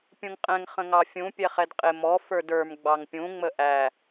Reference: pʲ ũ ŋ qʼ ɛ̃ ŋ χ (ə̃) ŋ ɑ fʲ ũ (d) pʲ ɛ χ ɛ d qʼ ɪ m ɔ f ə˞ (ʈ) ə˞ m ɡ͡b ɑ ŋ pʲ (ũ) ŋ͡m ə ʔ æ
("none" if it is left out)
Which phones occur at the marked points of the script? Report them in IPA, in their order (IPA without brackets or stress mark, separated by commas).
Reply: ə̃, none, d, ũ